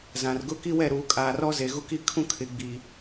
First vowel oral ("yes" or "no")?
no